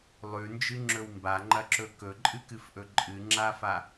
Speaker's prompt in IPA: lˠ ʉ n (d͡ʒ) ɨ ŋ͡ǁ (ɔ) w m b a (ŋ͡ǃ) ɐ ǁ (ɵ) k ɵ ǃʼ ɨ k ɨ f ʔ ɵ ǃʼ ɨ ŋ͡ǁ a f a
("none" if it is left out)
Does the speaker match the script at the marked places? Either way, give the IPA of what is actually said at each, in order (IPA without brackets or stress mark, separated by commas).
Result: d͡ʒ, ɵ, ŋ͡ǃ, ɵ